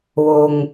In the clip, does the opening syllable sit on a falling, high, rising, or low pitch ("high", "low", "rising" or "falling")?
low